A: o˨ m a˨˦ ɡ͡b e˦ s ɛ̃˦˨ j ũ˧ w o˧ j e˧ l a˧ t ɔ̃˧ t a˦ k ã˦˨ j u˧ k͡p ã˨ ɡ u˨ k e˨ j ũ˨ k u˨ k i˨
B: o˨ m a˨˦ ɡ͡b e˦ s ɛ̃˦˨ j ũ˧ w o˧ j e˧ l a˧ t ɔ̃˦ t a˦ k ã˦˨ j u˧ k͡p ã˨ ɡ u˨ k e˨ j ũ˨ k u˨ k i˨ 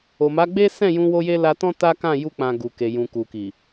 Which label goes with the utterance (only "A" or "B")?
B